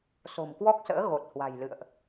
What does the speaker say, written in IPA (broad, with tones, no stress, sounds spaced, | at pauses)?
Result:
s o̤˨˩ m k w ɔ˦˥ k̚ s ə̰ː˧˥ ɣ o˨˩ t̚ h w a̤˨˩ j l ɨ̰˧˨ ə̯ ʔ